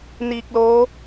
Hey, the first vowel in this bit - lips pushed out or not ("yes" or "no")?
no